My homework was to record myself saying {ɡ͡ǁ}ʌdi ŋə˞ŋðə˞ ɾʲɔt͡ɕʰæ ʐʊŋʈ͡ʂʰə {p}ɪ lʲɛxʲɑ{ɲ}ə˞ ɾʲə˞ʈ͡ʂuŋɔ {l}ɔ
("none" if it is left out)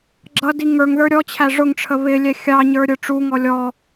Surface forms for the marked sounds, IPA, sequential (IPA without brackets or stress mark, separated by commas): ɡ͡ǁ, β, ɲ, lʲ